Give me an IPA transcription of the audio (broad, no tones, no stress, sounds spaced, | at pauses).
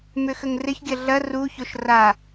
m ʏ x ə ŋ r ɪ ç ɡʲ ɐ ɮ ɐ r u ç o ʃ r a